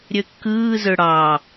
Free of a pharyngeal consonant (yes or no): yes